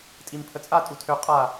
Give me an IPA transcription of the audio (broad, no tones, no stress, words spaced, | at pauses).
tʼimpʰət͡sʼa tʼutʰø qʼa